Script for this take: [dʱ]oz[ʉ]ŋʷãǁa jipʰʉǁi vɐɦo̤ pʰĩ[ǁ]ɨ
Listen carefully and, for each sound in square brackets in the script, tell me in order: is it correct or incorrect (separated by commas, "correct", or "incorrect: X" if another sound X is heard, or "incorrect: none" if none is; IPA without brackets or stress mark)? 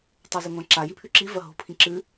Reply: incorrect: tˤ, correct, correct